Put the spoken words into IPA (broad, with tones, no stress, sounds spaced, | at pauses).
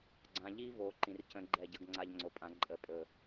ɡ͡ǀ ã˨ ʎ i˦ v o˨ ǃ ĩ˨ r c ə̃˦ ɡ͡ǃ ɛ˦˨ ɟ ə˦ ɡ ŋ͡ǀ a˦ ʎ ŋ͡ǀ o˨ pʼ ã˦ ǃʼ ə˦ pʼ ɵ˦˨